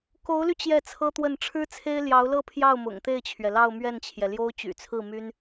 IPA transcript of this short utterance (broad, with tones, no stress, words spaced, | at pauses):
ko˧˥ʊ̯ly˧ t͡ɕjɛ˥˩t͡sʰɤ˥t̪wə˥˩n ʈ͡ʂʰɻ̩˥t͡sʰe˥ɪ̯ ljɑ˧˥ʊ̯lɤ˥˧pʰjɑ˥˩ʊ̯ mʊ̰˨˩ŋt̪e˥˩ɪ̯t͡ɕʰɥɛ˩lɑ˥˧ʊ̯ mɥɛ˥˩nt͡ɕʰjɛ˩ljo˥ʊ̯ t͡ɕy̰˨˩t͡sʰɹ̩˥˩my˥n